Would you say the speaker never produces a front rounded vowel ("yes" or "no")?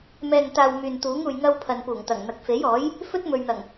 no